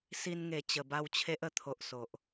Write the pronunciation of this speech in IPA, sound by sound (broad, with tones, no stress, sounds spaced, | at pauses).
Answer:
s i˧ n ŋ e˨˩ t͡ɕ ə˨˩ b a˥˧ w t͡ɕʰ e˦ ʔ ə˥˧ t̪ʰ o˨ ʔ s o˨ ʔ